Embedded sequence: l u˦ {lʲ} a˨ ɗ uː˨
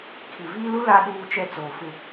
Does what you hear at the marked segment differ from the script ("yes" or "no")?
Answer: yes